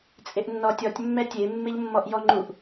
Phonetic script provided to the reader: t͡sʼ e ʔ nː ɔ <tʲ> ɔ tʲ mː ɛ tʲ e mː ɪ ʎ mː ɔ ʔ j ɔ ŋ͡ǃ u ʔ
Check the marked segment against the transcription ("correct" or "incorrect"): correct